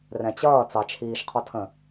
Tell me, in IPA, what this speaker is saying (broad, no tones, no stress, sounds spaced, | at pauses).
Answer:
r ɛ̃ t͡ɕ ʌː t͡s ɑ t͡ʃʰ iː ʃ qʰ ɔ tʰ ə̃